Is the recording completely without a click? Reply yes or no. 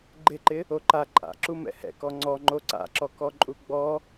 no